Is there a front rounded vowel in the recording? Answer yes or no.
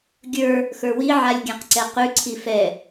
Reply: no